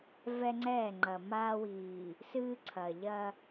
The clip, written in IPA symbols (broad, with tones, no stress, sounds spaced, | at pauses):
v ɛ˦ ŋ͡ǀ ɛː˦˨ ŋ͡ǃ ɐ˨ m aː˦ w iː˨ | s ɨː˦ ǀʰ ɐ˨ ʎ ɐ˦